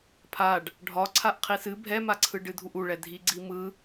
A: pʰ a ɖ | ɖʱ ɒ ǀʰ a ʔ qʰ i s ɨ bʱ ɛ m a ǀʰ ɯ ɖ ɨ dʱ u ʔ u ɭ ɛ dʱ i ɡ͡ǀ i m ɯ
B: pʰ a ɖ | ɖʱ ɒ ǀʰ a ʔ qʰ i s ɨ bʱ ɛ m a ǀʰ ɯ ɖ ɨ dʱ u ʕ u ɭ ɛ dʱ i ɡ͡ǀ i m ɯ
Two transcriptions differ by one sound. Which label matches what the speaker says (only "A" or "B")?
A